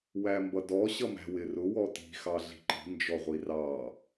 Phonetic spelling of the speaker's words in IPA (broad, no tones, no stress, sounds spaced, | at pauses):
w æ m b ʌ d ɔ ɕ ʌ m æ̤ w ɪ r ʊ w ɔ t i̤ x ɑ ɮ i̤ ǃ i̤ n d͡ʒ ɔ ʁʷ i r ɑ